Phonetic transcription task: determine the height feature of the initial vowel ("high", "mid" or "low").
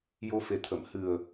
mid